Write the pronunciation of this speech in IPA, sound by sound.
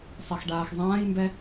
sˤ e x ɖ aː x zˤ ãː j m b ɛ

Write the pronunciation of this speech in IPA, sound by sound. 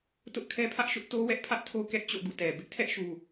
t ʊ˦ ʔ kʰ ɛ˦ pʰ ä˦ ʔ ʃ ʊ˦ ʔ t o˦ w ɛ˦ ʔ pʰ ä˦ ʔ tʰ o˦ k ɛ˦ ʔ t͡ɕ o̰˦˨ ɡ ṵ˦˨ t ɛ˨ b ɪ˦ ʔ tʰ ɛ˦ ʔ ʃ u˨

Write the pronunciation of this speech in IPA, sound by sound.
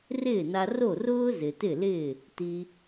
r ɪː˥˩ n a˧ r o˥˩ r ʊː˥ z ɪ˩ t ɪ˥˩ l ɪː˥˩ | t i˧

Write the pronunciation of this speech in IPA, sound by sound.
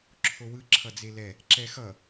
ǁʰ o w ɯ ǁʰ ʌ d͡z e l ɛ | ǁ ɛ x ʌ

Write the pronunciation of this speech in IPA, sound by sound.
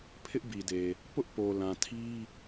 pʰ ɪ˦ ʔ b i˨ d e˨ | p ʊ˦ ʔ p o˨ l ã˨ tʰ i˦

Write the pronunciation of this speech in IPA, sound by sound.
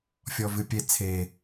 fʲ ɔ v ɨ pʲ e t͡sʰ e

